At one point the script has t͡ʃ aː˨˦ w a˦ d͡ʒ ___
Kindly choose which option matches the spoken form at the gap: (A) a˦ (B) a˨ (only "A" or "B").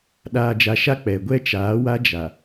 B